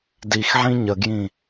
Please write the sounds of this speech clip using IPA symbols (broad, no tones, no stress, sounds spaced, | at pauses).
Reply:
d i x ʕ ĩ ɲ ə ɡ j ĩ